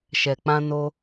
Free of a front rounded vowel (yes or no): yes